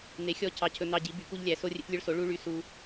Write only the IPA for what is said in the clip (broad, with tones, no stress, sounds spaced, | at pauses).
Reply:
n̪ e˩˥ xʲ ɔ˧ cʰ ɑ˧ cʰ ɵ˧ n̪ ɑ˧ ɟ i˩˥ b y˩˥ k u˧ ʎ lʲ æ˩˥ s o˧ rʲ ḛ˧ t lʲ ø˧ ɭ s o˩˥ ɭ u˧ ɭ y˧ s u˧